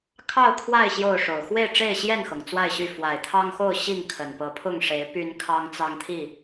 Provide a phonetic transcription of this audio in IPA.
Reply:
kʰ ɑ˥˨ ʊ̯ kʰ w a˥˨ ɪ̯ ɕ j o˥˨ ʊ̯ ʂ o˨˩ ʊ̯ x w e˥˨ ɪ̯ ʈ͡ʂ e˥˨ ɪ̯ ɕ j ɛ˥˨ n x ɤ˩ ŋ t͡s w a˥˨ ɪ̯ ɕ y˥˨ f w a˨˩ ɪ̯ t̪ʰ ɑ˦ ŋ x o˥˨ ʊ̯ ɕ i˥˨ ŋ kʰ ə˨˩ n p ɤ˨˦ pʰ ʊ˥˨ ŋ ʂ e˨˦ ɪ̯ p y˦ n kʰ ɑ˦ ŋ t͡s ɑ˦ ŋ t̪ʰ i˥˨

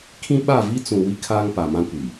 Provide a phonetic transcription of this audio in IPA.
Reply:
kʰ ĩ˦ ɓ a˦˨ v i˦ t͡s ũ˨ w i˦ kʰ aː˦ ŋ p a˨ m ã˦ kʷ i˨

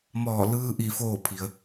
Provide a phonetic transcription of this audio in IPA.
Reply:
m ɔː˧˩ l ɯː˧ ʔ i˧˩ f oː˧˩ pʰ i˩ ə̯

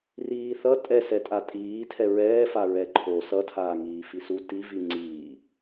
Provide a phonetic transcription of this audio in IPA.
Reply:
r iː θ ʌ tʼ ɛ s ɛ tʼ a tʼ iː tʰ ɛ ɹ ɛː f a ɹ ɛ ǃʰ o s ʌ tʰ aː ŋ iː f i s u t i v i ŋ͡ǀ iː

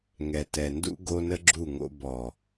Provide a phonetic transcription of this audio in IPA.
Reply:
ŋ ɛ˨ t ɛ˨ n d ṵ˦ ɡ o˦ n ə˦ ɡ͡ǁ u˦˨ ŋ o̰˦ b ɔ˨

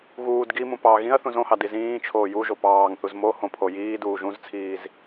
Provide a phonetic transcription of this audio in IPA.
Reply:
ɣ uː d ɡ i m ũ p ɑ ɣ ĩ ɐ̯ θ ũ z õ h ɑ d i z ĩː t͡ʃʰ oː j u ʒ o p ɑː ŋ θ u z m o h õ pʰ o j iː d uː ʒ ũ z t͡sʰ iː z

